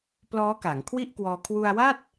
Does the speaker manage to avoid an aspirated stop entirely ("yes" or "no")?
no